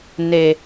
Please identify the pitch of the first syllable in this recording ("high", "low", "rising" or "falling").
low